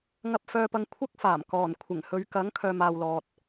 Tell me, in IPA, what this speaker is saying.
ŋɐ˧p̚fœː˧pɐ˧ŋ kʷʰɐ˥k̚faː˨˩m kɔː˨˩n kʷʰɪ˨˩ŋhɵ˨˧ɥkɐ˨˥ŋ kʰœː˨maː˨wlɔː˨t̚

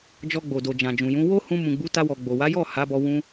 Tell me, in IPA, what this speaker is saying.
d͡ʒɔ˧ɡ͡bo˨do˨ d͡ʒã˨d͡ʒũ˨jũ˨˦ wo˦ hũ˧mũ˨ɡ͡bu˨˦ta˧ wɔ˨ɡ͡bo˨wa˨˦jɔ˦˨ ha˨˦bɔ˧ wũ˧

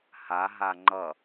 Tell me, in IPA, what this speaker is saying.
ha ɦaŋ͡ǃʌ

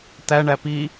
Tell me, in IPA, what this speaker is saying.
tæɳæ pi

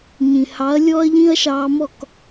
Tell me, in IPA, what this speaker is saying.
ɲĩ˩hɑ˩˥ɐ̯ lʲɔ˥ɐ̯ʎĩ˥ɐ̯ʃɑː˧mɔ˥˩k

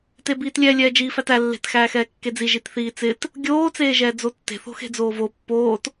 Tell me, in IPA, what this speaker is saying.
tebiːtlʲɛ lʲɛːd͡ʒiːfætæ lːe̤t xæːxɛːkːed͡zi ʒitθiːt͡sɪt | ɡʲoː t͡seːʒɛːd͡zotːe̤ θo̤xe̤d͡zoːvo pːoːt

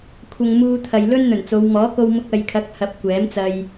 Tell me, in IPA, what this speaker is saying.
kʷʰɐ˧ŋmuː˧t̪ʰɐ˨j lɵ˥nn̪ɵ˨˩nt͡so˨˧w mɔː˨˥ko˧wmʊ˧k̚ ɐ˨jkʰɐ˨˥k̚hɐ˨p̚ kʷɛː˨˥mt͡sɐ˧j

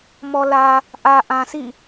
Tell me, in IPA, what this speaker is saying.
mɔ˨lä˨ | ʔä˨ ʔã˨sʰḭ˦˨

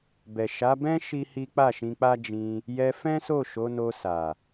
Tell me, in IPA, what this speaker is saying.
bɛ˨ʃa˨˦bɛ̃˦ ʃi˦hi˦ k͡pa˦˨ʃĩ˧k͡pa˦ d͡ʒĩ˧ | jɛ˧fɛ̃˦so˦˨ ʃo˨˦no˧sa˨

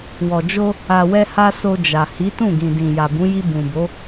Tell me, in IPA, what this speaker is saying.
wɔ˨d͡ʒo˧ | a˨wɛ˧ha˧ so˧d͡ʒa˨ hi˨˦tũ˦˨ɡĩ˨dĩ˨ ja˨bũ˨˦ji˧ bũ˨bo˨˦

